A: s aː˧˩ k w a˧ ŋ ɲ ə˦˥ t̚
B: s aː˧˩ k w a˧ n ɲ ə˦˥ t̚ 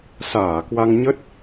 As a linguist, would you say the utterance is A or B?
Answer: A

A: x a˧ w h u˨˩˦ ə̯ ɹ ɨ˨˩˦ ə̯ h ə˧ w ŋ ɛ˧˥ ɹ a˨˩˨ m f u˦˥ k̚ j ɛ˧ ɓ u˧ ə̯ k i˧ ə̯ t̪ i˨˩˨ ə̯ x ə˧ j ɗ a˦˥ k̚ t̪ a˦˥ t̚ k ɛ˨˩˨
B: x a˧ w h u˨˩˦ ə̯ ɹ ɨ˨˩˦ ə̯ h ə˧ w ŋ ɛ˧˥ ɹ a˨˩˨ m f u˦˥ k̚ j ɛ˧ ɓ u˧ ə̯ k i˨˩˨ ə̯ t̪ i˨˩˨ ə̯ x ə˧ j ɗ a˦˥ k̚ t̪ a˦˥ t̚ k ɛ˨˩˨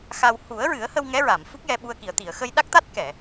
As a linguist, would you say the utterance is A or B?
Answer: B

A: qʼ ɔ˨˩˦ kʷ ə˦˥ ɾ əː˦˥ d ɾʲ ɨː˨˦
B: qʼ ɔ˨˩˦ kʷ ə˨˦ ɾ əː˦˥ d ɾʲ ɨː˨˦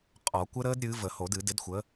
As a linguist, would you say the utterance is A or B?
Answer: A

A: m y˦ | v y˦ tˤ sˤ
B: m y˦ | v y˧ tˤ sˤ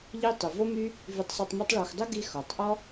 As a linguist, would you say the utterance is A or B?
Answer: B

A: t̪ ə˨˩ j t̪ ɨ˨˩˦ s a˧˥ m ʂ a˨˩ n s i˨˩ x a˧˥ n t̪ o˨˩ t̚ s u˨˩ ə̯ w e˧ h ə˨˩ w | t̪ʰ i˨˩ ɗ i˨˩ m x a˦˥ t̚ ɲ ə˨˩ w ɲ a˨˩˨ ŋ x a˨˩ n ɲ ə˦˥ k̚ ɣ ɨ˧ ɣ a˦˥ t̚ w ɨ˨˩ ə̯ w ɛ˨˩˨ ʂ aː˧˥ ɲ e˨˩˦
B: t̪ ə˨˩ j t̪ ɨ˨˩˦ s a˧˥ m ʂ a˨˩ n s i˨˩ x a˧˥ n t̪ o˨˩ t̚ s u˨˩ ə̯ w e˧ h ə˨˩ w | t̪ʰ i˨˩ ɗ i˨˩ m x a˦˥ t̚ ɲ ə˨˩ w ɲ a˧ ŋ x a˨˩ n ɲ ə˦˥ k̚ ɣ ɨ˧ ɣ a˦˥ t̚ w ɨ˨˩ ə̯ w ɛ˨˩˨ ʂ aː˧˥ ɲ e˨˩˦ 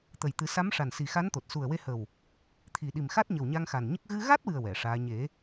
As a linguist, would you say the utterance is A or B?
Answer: B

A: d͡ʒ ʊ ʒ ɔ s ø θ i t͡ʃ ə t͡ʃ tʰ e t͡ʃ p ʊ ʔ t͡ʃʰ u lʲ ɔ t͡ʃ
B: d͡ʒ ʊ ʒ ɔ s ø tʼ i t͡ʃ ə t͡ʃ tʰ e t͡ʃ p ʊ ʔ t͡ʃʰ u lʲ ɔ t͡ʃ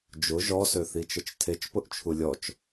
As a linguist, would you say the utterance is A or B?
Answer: A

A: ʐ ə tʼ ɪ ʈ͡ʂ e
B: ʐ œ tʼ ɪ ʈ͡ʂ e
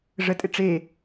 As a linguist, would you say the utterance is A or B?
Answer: A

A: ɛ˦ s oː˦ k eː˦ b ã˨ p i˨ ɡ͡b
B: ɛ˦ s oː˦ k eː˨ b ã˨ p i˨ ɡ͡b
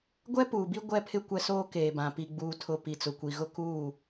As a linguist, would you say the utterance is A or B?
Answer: B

